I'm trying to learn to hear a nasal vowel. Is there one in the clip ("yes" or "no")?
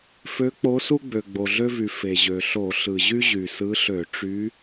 no